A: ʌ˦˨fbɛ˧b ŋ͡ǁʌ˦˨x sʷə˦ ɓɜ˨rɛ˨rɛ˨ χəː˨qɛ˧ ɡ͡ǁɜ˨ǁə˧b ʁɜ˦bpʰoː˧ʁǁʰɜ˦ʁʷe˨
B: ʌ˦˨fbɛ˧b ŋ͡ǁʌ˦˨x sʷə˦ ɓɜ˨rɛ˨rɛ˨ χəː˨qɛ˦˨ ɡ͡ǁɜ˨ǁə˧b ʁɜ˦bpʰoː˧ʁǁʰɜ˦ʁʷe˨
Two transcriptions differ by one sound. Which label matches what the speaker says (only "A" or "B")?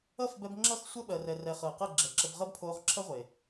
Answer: B